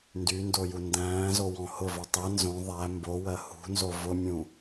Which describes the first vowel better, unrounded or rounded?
rounded